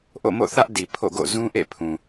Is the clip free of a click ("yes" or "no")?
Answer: yes